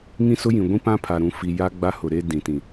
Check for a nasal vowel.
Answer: present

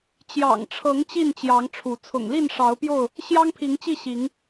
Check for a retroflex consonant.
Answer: present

